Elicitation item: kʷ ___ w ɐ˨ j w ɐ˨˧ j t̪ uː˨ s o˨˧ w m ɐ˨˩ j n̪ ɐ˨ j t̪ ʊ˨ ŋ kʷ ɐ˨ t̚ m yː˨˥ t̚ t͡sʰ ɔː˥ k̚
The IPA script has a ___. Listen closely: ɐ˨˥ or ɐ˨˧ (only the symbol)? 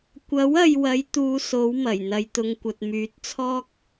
ɐ˨˥